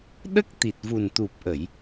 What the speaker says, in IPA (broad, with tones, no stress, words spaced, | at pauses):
ɗə˦˥k̚ t̪i˨˩t̚vu˨˩nt̪u˨˩p̚ʔə˨˩˨j